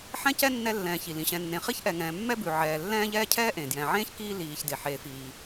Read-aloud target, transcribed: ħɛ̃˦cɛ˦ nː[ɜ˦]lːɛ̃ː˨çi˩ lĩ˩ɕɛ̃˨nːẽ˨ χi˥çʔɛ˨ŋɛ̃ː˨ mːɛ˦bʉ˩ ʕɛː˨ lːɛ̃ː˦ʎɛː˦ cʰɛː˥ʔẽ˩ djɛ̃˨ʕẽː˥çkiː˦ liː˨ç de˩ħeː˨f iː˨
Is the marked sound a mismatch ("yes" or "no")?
yes